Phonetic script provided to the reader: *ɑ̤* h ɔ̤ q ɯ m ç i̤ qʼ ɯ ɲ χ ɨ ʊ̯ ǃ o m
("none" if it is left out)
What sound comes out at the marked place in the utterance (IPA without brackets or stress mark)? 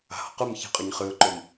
a̤